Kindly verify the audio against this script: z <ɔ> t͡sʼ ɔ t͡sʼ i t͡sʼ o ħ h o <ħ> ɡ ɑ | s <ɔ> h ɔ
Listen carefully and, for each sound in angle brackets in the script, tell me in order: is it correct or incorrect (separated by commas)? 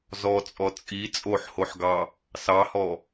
correct, correct, incorrect